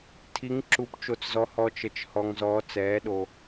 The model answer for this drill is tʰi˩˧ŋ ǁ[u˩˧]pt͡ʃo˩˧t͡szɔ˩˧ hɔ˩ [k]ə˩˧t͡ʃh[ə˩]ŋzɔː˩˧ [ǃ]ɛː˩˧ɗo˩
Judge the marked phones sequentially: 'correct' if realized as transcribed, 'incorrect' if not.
correct, incorrect: t͡ʃ, incorrect: ɔ˩, incorrect: t͡s

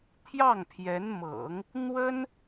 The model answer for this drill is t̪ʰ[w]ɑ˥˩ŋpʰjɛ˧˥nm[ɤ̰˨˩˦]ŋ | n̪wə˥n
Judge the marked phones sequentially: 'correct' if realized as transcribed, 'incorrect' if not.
incorrect: j, correct

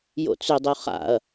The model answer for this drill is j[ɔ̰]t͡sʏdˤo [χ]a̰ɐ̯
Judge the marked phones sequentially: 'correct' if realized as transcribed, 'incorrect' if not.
incorrect: o̰, correct

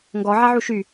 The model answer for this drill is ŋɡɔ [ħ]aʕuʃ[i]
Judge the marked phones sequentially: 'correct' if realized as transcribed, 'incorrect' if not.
incorrect: ʕ, incorrect: y

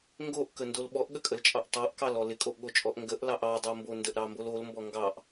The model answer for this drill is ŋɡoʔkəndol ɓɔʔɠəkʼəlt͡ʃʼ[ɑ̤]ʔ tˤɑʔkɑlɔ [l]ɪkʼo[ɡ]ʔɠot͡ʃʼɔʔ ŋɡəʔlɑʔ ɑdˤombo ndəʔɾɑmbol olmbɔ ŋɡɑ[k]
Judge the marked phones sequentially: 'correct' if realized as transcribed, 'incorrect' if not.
incorrect: ɑ, correct, incorrect: none, incorrect: ʔ

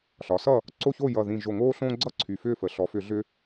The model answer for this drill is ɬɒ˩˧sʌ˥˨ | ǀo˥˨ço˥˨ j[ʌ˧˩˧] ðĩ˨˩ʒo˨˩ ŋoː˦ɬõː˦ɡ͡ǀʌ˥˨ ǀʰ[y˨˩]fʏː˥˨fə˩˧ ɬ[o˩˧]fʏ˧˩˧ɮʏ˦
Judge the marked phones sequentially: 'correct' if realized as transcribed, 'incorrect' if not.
incorrect: ʌ˨˩, correct, incorrect: ɔ˩˧

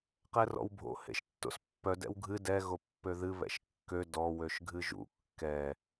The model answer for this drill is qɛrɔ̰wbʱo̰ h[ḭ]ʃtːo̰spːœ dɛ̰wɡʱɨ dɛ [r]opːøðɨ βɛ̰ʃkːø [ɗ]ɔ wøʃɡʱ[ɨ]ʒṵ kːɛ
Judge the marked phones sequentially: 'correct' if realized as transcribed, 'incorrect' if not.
incorrect: ḛ, incorrect: ɣ, incorrect: d, correct

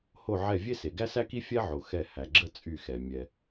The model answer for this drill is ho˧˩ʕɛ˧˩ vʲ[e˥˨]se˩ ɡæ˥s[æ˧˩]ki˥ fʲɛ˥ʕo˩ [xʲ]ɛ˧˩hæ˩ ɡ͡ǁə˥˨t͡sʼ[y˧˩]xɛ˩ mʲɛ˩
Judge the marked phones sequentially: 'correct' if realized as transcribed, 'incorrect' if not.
incorrect: e˥, incorrect: æ˥, incorrect: x, correct

